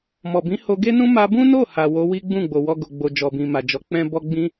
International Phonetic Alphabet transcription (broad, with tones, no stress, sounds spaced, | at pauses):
m ɔ˨ b ĩ˨˦ h o˧ ɡ e˦ n ũ˦ m a˧ b ũ˦ n o˦˨ h a˨ w o˨˦ w i˦ ɡ͡b ũ˦˨ ɡ͡b o˨ w ɔ˧ ɡ o˨ ɡ͡b o˨ d͡ʒ ɔ˨ b ĩ˨ m a˨ d͡ʒ ɔ˨˦ k͡p ɛ̃˦ b ɔ˦ ɡ͡b ĩ˦